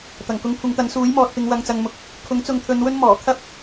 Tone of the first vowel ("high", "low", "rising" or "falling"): low